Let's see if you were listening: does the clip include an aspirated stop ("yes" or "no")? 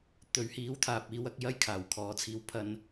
yes